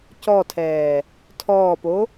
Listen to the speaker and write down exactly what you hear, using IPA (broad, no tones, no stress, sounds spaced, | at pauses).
c ɔ tʰ ɛː | tʰ ɔː p o